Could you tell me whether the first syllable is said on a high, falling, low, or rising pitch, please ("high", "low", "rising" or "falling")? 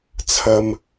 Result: high